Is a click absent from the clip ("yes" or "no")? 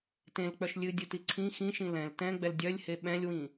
no